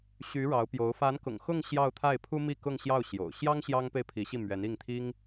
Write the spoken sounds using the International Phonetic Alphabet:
ɕy˧˥ɻɑ˧˥ʊ̯pjo˧˥ʊ̯ fa˧˥nkʊ̰˨˩ŋ xʊ˥˧ŋ ɕjɑ˥˧ʊ̯ t̪ʰa˥˩ɪ̯pʰu˥mi˥˧kʊ˥˧ŋ ɕjɑ˥˩ʊ̯ɕjo̰˨˩ʊ̯ ɕjɑ˥ŋ ɕjɑ˥ŋpe˥˩ɪ̯pʰi˧˥ɕi˥˩ mɥɛ˧˥ni˥˩ŋt̪ʰi˥ŋ

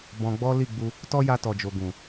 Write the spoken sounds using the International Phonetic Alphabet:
bɔ̃˧ɡ͡bɔ˦ li˦˨ɡ͡bu˧ | tɔ˦ja˧ tɔ˨d͡ʒo˨ ɡũ˨

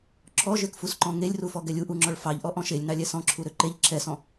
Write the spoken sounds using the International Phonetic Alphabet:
ǁʰɔʒøkfusǃɔ̃ ŋelʲrufɔɡɛlʲ uʔuŋ͡ǁɔɭ fɑʎʔɔʔɔ̃ ʃelʲnɑlʲɛ sɔ̃ǁʰuɾø ǃeʎ ǁʰɛsɔ̃

